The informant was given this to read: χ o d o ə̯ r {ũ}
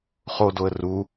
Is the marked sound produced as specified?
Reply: no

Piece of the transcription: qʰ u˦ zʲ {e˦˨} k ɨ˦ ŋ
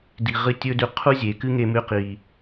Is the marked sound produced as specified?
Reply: no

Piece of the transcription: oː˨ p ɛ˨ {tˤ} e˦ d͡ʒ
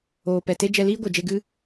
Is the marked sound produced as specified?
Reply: no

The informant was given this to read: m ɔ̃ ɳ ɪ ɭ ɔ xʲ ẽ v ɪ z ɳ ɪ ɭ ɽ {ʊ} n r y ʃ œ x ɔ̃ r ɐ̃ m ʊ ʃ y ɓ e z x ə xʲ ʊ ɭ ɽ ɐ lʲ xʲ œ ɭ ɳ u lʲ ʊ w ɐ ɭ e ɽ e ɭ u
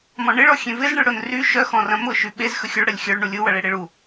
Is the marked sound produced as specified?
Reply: yes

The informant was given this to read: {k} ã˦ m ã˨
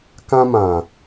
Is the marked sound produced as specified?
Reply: yes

